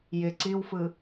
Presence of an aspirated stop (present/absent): absent